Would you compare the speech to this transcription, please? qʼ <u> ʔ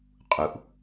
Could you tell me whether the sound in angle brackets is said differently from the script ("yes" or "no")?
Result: no